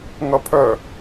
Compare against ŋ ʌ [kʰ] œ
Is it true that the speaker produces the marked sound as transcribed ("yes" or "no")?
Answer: no